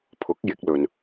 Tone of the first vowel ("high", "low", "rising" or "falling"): rising